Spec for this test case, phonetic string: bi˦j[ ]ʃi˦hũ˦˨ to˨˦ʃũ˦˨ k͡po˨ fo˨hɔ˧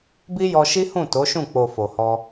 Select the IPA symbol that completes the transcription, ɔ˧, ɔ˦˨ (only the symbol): ɔ˧